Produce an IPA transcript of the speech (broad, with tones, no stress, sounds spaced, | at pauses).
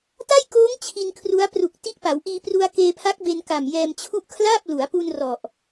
t a˥˩ j k oː˦˥ ŋ t͡ɕʰ i˧ n kʰ r u˦˥ a̯ p r u˨˩ k̚ t i˦˥ ʔ p a˩˦ w ʔ iː˧ p r u˧ a̯ k eː˧ pʰ a˦˥ k̚ b e˧ n k a˨˩ m j ɛː˧ m t͡ɕʰ u˦˥ ʔ kʰ l aː˥˩ p̚ l u˩˦ a̯ p u˧ n r ɔ˨˩ ʔ